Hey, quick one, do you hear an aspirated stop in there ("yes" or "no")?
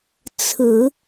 yes